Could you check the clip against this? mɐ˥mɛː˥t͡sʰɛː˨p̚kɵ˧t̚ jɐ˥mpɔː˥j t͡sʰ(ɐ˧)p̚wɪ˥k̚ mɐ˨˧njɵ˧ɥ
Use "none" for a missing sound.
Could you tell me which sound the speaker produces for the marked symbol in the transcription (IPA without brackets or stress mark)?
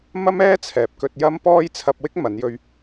ɐ˧